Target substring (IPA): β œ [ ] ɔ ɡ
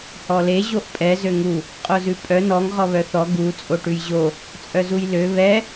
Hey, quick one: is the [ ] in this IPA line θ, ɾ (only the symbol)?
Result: θ